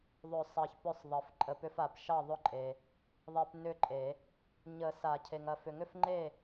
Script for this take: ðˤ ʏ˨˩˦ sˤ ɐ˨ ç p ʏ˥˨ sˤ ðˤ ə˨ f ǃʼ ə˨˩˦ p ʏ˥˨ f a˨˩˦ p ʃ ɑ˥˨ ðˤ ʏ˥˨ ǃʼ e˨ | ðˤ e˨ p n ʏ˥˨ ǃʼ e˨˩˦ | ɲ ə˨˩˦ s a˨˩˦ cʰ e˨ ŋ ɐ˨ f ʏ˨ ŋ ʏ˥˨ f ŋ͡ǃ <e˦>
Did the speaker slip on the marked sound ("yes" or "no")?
yes